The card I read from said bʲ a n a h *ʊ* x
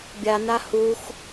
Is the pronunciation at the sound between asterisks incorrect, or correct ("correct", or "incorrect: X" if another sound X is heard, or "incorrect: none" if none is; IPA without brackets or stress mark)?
incorrect: u